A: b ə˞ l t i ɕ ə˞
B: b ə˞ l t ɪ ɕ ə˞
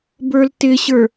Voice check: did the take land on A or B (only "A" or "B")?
B